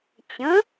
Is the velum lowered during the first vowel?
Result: yes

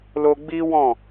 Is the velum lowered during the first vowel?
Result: no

